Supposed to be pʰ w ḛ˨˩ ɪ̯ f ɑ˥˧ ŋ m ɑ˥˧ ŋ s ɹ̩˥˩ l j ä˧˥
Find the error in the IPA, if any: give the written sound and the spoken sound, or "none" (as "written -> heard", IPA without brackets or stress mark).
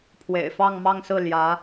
none